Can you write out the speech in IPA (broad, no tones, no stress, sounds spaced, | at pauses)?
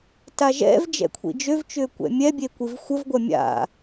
t a ʒ ɛ̰ v d͡ʒ ɛ̰ kʷʰ ḭ d͡ʒ ø v t͡ʃ ʏː kʷ ɛ̰ mʲ ɛ bʲ e kʷ i v xʷ ə v ɡʷ ɐ mʲ a̰